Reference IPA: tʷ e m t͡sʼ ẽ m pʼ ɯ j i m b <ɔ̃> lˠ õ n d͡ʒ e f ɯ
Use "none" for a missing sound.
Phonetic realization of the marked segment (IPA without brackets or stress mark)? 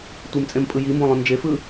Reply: õ